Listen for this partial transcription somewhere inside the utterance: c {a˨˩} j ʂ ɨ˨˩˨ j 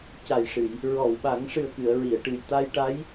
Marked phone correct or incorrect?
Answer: correct